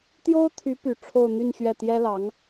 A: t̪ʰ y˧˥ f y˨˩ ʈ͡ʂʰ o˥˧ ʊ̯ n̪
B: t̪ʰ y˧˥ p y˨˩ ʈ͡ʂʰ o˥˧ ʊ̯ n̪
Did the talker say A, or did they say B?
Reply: B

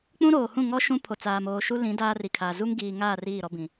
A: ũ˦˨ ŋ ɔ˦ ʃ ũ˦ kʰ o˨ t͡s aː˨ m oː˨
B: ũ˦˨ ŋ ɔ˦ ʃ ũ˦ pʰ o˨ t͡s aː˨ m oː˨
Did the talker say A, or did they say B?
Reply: B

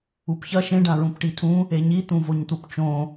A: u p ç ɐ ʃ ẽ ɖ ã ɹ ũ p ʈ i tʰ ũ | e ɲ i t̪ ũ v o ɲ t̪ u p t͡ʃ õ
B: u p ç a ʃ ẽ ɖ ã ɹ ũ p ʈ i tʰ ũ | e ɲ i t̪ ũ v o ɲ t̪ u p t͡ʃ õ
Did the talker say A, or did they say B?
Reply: A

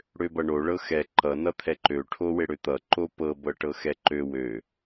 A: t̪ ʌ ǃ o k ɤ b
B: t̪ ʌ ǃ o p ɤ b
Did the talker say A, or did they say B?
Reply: B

